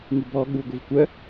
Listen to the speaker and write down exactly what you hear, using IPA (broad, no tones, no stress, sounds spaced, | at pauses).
ŋ i b ɔ ɠ u ɡʷ i v kʷ œ